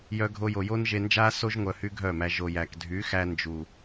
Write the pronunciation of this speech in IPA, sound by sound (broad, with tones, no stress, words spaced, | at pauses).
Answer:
jœ˦ɡʱo˦jo˧ jo˦nʒe˧ nd͡ʒa˦so˦ʒ ŋʷœ˧hy˦ɡʱœ˦˨mæ˧ ʒo˨jæ˨kdʱy˨˦xæ˧ nd͡ʒu˨